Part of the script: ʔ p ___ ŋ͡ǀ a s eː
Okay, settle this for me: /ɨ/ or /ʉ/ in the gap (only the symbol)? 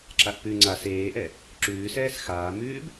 ʉ